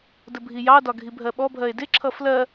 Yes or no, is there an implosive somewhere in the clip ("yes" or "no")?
yes